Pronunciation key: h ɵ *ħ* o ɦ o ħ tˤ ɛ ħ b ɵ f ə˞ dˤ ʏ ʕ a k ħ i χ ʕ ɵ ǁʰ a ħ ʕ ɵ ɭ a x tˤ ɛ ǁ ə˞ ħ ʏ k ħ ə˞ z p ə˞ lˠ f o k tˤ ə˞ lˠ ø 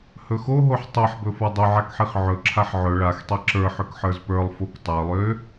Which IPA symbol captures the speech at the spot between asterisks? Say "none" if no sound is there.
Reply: x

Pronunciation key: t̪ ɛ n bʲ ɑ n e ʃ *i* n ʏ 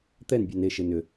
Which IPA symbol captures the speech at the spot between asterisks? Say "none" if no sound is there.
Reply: e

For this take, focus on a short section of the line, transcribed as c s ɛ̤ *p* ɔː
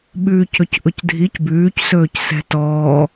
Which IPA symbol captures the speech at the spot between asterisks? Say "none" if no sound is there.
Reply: t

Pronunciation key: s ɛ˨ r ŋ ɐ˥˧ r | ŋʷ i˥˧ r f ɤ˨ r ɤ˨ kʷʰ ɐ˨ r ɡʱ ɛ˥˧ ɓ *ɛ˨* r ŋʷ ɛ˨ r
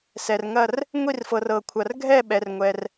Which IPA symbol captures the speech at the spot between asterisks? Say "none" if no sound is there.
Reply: ɛ˨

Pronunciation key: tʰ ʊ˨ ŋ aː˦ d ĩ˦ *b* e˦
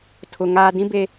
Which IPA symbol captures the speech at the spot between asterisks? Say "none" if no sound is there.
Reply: b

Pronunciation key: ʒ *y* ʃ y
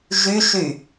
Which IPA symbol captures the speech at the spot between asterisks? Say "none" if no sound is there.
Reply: y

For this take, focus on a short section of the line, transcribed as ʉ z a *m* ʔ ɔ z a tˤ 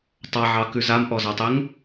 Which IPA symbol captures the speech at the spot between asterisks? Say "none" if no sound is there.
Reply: m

